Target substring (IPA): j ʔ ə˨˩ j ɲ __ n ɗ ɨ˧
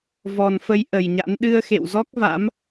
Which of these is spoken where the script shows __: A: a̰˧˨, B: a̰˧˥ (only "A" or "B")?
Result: B